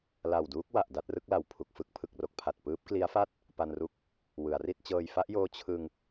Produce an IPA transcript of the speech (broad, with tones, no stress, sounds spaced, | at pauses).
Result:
l a˨˩ w d uː˦˥ k̚ w a˨˩ ʔ d a˥˩ t̚ r ɯ˦˥ k̚ l a˨˩ w pʰ u˨˩ k̚ f ɯ˦˥ k̚ pʰ ɯ˨˩ k̚ r o˥˩ k̚ pʰ a˨˩ t̚ p ɯː˦˥ p̚ k l i˦˥ a̯ f a˥˩ t̚ | p a˧ n r u˦˥ k̚ | w ɯ˩˦ a̯ r i˥˩ t̚ t͡ɕ ɤː˧ j f a˦˥ ʔ j oː˦˥ t͡ɕʰ ɯ˧ ŋ